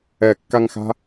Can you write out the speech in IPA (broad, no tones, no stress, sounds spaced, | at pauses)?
ɛ kː a ŋ x a̤